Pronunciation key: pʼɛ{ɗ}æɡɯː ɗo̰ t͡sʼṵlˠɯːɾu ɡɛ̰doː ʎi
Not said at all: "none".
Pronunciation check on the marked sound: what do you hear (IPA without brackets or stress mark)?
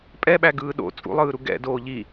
ɓ